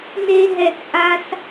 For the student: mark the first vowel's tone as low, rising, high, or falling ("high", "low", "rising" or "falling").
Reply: high